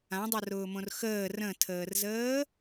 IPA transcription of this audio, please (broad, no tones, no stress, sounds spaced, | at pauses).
ã dˤ ɤ r ʊː m õ r x əː r ə̃ tʰ əː r z əː